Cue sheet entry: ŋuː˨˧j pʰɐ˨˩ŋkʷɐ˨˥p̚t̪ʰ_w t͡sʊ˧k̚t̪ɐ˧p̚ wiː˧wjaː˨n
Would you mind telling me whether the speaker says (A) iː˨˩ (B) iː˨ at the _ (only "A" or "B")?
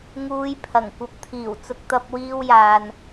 A